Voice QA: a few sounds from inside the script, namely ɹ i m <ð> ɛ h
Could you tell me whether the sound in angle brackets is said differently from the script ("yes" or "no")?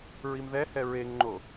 no